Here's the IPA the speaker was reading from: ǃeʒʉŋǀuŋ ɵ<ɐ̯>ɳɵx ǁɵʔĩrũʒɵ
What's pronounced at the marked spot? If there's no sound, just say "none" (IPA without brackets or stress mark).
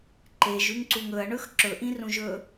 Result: ɐ̯